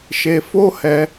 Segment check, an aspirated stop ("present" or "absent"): absent